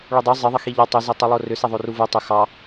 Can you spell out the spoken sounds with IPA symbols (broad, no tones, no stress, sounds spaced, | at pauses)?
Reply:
ɭ u dˤ u zˤ ɪ ðˤ ɪ x i ʎ ɑ tˤ ʏ z e tˤ i lˠ o r ʏ s e ðˤ o r u v u tˤ ʏ x ɑ